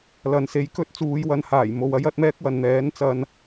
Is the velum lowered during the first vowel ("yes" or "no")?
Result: no